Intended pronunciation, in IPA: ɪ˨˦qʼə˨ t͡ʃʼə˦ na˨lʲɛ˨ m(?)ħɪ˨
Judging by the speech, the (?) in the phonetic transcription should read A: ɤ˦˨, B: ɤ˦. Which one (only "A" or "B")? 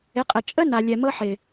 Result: B